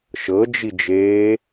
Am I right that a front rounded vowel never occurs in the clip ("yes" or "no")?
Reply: yes